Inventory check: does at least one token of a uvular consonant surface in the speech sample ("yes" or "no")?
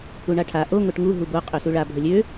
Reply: yes